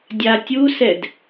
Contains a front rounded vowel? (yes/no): no